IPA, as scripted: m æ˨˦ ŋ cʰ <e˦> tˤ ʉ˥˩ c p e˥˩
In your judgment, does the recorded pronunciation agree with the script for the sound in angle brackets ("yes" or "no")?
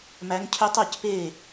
no